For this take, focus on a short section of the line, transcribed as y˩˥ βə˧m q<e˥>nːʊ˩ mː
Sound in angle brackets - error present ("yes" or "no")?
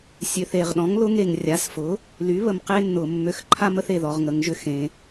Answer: no